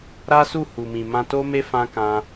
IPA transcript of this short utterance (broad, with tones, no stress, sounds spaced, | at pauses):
ɾ a˦ s u˦˨ h u˨ m ĩ˨ m ã˧ t o˦ m e˦ f ã˧ k ã˧